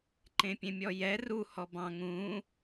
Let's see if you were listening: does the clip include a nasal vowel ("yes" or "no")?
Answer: yes